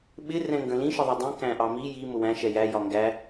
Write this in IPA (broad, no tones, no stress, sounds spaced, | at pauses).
ɓ ɪ r ɛ̃ ŋ ɡ ə̃ l ĩ ʃ ə ðˤ i dˤ ĩ k æ̃ ʔ ɑ m i j i m ʊ w æ̃ ʃ ɛ j æ j ɒ ŋ ɡ æ